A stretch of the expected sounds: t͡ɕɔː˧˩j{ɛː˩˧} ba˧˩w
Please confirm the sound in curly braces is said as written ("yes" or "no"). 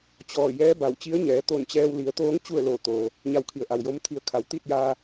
no